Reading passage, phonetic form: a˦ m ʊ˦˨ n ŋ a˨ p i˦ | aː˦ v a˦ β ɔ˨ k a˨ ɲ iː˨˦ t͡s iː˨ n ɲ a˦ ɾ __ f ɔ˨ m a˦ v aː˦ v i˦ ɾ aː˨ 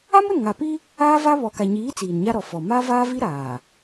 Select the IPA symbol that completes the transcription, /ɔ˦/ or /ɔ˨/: ɔ˨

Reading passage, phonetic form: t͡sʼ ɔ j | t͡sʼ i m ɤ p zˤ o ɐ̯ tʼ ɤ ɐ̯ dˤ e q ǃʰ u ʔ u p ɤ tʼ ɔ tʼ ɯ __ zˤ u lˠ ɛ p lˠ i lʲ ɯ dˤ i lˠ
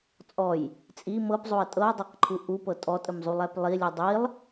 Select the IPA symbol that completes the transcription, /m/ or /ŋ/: m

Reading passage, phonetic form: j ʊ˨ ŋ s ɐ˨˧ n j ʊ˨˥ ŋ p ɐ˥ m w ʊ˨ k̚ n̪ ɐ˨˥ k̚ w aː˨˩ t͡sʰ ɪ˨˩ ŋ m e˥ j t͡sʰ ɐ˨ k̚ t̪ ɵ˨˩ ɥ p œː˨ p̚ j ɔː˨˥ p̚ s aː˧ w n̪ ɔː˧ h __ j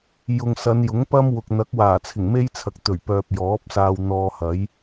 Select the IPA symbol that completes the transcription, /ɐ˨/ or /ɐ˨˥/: ɐ˨˥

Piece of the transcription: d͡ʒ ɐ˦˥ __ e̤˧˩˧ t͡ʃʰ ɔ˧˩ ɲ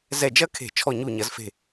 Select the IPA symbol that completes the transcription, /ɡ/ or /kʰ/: kʰ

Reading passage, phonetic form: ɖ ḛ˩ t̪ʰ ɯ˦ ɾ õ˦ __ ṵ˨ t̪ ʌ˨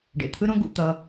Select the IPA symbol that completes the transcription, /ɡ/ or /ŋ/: ɡ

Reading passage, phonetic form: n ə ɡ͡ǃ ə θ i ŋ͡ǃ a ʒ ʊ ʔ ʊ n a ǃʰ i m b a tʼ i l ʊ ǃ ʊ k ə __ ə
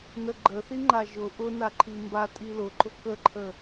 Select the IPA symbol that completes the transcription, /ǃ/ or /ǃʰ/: ǃʰ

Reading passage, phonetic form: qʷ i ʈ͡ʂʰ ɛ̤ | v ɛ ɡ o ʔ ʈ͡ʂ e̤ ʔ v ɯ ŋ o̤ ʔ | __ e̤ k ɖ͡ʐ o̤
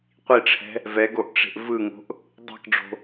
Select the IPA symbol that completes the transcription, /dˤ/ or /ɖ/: dˤ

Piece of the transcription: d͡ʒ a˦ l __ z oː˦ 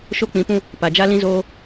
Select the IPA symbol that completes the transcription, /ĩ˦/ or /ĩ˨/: ĩ˦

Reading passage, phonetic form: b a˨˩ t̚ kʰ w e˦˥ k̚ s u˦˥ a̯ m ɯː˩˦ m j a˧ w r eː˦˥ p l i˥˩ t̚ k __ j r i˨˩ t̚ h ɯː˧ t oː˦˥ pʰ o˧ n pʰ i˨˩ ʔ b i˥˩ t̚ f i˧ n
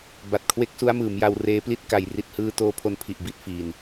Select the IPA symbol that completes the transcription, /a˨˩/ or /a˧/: a˧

